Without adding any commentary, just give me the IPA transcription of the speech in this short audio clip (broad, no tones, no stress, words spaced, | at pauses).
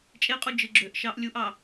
t͡ʃʼeqʼu d͡ʒɯɡ͡ǁøʔʃɑʔ lʲuʔɑ